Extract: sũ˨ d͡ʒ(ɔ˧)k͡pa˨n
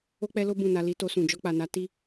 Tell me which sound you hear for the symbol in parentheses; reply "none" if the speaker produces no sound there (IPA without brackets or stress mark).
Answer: ɔ˧